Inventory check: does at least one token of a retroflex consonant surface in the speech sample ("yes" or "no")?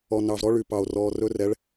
yes